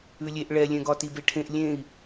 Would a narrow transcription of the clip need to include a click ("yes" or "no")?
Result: no